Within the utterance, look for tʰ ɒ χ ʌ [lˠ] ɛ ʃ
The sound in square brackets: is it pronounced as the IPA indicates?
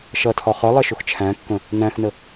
yes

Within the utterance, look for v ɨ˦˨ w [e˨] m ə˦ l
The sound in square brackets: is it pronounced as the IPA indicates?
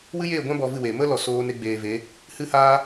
yes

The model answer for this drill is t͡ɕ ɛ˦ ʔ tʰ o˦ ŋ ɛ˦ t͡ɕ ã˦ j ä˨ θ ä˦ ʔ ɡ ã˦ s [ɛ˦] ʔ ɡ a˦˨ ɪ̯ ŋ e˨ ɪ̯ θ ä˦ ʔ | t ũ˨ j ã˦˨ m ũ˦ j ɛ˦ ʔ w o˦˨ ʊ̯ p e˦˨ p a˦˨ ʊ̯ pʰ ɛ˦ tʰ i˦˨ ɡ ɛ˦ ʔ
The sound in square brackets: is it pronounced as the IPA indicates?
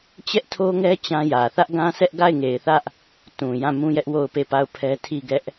yes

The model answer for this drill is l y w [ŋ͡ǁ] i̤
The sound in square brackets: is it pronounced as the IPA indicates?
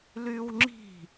yes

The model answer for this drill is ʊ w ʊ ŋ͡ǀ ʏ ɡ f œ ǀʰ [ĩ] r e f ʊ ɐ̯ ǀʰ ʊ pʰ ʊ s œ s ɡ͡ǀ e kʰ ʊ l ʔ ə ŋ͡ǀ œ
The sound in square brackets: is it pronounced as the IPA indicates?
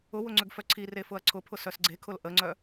no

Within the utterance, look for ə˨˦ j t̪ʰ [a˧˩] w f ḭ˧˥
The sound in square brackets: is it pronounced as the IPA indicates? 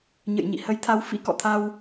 no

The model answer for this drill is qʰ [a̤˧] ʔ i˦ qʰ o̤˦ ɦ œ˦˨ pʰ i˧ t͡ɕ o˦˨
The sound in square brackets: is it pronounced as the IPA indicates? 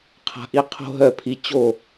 yes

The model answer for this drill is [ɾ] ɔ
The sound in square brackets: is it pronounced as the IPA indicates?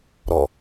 yes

